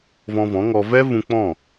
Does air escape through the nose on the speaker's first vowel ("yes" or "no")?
yes